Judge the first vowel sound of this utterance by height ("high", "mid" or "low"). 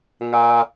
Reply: low